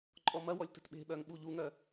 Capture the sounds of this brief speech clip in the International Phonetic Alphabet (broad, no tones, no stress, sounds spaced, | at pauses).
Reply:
ǃʼ ɔ m ɐ w ɔ lʲ t ə̤ t ɓ e̤ ɓ œ ŋ ɓ u ʎ u ŋ œ